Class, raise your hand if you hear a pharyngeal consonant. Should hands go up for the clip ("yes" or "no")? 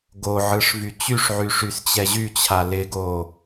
yes